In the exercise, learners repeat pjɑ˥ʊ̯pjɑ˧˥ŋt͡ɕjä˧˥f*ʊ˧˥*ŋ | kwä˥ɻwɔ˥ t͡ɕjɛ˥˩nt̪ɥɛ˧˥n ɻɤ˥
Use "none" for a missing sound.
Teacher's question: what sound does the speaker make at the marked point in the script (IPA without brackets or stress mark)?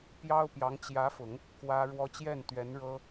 ʊ˨˩˦